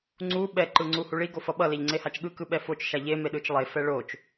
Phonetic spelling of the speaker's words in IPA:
ŋ͡ǀ u ɓ ɛ ǃ ɯ ŋ͡ǀ u h u ɭ i ɡ o f ʌ ɓ ʌ l e ʎ ŋ͡ǀ e h a t͡ʃ ɠ ɯ k ɯ ɓ ɛ f o t͡ʃ ʃ a ʎ e m e ɗ ɯ t͡ʃ lˠ e f ɛ ɭ o t͡ʃ

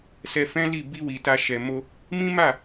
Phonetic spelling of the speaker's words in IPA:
s ɛ˧ f ɛ̃˦ l i˦˨ b i˧ w i˨ t a˧ ʃ ɛ˨ m o˧ | m ĩ˦ m a˦˨

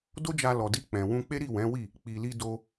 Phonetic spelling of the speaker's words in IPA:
d o˦ d͡ʒ a˧ l ɔ˨ d i˧ k͡p ɛ̃˨ w ũ˧ k͡p e˦ ɾ i˦˨ w ɛ̃˨˦ w i˦˨ | k͡p i˨ l i˧ d o˧

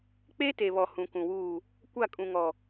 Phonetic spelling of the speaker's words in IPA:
k͡p e˦ t e˨ β ɔ˨ h ũ˨ k ũ˨ w uː˦˨ | kʷ a˦˨ kʼ ũ˨ ŋ ɔ˨

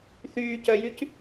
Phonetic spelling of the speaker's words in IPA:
θ yː c œ j y c

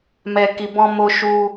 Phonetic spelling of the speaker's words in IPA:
m ɛ˨ k i˨ b ɔ̃˧ m o˧ ʃ u˧

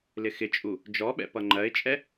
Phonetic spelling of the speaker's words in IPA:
l ɪ x ɪ t͡ʃʼ u | d͡ʒ ɔ ɓ ɛ̰ p ʌ ŋ͡ǃ ɜ ɪ̯ t͡ʃʼ ɛ

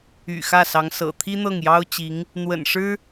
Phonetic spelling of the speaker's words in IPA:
y̰˨˩ x ä˥˩ s ɑ˧˥ ŋ s ɤ̰˨˩ t̪ʰ i˥ n̪ ɤ˥˩ ŋ j ɑ˥ ʊ̯ t͡ɕ i˧˥ ŋ | n̪ w ə̰˨˩ n ʂ ɻ̩˥

